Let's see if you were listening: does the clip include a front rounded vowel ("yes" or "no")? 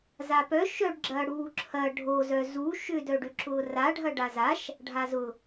yes